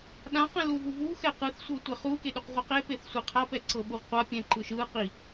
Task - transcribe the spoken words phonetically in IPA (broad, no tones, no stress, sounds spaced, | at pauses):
ɗ ã q ɛ̃ l u v u v u x ɛ q ɯ θ sʷ ɤ tʷ ɛ χ u k e ɗ u q ʁʷ ɛ q e p e θ sʷ i qʰ a p ɛ ǀ ɤ ɓ u ʁ qʷ a pʲ ɛ̃ ǃ ɯ ʃ ɯ q i